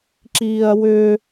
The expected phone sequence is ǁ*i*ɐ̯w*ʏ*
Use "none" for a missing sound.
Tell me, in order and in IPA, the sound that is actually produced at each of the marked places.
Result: iː, ʏ

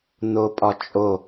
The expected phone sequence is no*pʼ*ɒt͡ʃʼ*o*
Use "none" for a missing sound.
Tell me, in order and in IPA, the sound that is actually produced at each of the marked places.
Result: pʼ, o

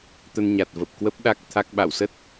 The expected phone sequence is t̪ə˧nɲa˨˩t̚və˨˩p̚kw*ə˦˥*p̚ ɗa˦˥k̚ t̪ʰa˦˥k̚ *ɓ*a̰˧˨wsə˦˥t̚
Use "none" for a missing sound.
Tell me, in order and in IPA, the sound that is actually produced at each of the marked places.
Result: ə˦˥, ɓ

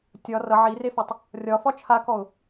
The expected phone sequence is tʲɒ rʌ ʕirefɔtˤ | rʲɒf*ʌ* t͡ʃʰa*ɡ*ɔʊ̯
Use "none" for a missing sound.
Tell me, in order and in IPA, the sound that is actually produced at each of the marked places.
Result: ɒ, k

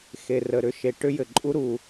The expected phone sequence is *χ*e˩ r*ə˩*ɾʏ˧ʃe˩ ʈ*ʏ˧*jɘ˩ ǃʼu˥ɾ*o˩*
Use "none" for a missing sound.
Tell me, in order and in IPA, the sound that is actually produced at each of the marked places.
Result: x, ə˩, ʏ˥, u˩

